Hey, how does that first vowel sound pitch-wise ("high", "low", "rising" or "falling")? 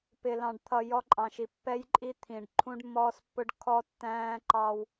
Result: low